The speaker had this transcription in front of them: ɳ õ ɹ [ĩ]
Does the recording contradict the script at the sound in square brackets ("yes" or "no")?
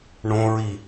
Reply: yes